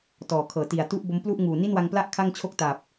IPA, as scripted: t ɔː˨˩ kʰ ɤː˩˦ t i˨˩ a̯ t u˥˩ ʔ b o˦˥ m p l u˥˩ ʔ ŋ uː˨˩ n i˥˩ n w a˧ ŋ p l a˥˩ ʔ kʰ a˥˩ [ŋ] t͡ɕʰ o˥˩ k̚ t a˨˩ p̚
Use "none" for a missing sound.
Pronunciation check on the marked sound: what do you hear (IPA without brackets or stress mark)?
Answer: ŋ